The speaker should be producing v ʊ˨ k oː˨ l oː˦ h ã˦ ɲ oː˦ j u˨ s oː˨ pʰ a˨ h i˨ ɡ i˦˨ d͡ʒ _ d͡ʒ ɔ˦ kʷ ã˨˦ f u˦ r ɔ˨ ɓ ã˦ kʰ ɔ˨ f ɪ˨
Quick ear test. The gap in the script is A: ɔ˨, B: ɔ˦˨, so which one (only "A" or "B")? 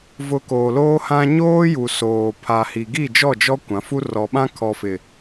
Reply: B